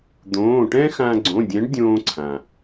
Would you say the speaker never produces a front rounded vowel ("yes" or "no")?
yes